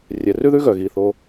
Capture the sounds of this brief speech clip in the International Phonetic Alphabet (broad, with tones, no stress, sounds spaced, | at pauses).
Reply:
rʲ ɛ˩ r ʉ˥ ð ʉ˥ ɣ œ˩ ɣ i˩ θ o˩